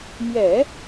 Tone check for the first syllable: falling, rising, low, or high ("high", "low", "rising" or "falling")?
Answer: low